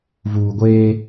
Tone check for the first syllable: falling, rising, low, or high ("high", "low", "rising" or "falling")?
low